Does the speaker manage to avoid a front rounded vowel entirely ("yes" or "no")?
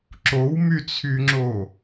no